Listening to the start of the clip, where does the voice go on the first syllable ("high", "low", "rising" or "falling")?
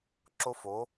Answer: high